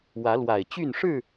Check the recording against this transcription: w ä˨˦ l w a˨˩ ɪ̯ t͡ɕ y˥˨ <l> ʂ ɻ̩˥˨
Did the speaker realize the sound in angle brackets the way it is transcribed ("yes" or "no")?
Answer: no